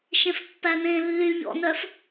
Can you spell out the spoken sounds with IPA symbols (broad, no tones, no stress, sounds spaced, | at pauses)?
ʃ ẽ f pː æ n ẽː lː y ʎ ɔ̰ n œ f